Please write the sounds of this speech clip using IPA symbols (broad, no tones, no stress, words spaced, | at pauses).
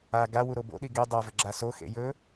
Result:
a ɡawu ɾobo̰ɗi ɡe dˤavɵ ɡ͡ǁasoxḛ jɵ